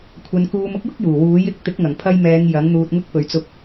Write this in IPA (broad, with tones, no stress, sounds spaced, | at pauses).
kʷʰ ɐ˨˧ n k uː˧ m ʊ˥ k̚ j ʊ˥ k̚ j uː˨˩ w uː˨˥ j ɪ˨˥ k̚ t̪ ɪ˨˥ k̚ ŋ ɐ˨˩ ŋ pʰ ɐ˧ j m ɛː˨˧ ŋ j ɐ˨˥ ŋ n̪ uː˧ t̚ ŋ ʊ˥ k̚ p ɵ˨ ɥ t͡s ʊ˧ k̚